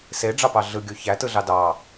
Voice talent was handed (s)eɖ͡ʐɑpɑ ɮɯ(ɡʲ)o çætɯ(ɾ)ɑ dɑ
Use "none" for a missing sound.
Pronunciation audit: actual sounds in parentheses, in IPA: s, ɡʲ, ɮ

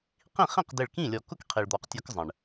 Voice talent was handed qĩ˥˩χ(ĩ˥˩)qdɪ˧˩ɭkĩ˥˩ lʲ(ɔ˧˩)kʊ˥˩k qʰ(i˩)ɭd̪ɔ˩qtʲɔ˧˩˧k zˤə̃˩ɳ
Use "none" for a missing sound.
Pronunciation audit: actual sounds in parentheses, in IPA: ĩ˥˩, ɔ˧˩˧, i˩

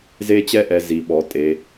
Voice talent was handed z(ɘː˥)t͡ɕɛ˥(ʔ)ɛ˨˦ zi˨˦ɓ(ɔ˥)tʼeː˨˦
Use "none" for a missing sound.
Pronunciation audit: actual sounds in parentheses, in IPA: eː˥, ʔ, ɔ˨˦

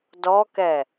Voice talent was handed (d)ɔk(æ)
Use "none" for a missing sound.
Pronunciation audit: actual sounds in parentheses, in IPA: d, ɛ

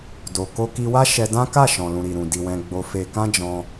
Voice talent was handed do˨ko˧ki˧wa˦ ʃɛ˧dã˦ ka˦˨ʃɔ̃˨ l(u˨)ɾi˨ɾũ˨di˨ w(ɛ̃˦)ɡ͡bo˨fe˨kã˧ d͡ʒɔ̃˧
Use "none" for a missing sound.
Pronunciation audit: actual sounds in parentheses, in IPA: ũ˨, ɛ̃˨

